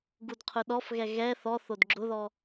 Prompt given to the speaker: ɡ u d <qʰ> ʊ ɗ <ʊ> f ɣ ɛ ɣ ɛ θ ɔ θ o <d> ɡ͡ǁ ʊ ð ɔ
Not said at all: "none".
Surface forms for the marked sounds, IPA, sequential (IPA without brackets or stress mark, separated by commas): qʰ, ɔ, d